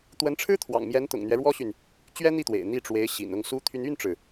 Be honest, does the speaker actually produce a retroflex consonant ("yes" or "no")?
yes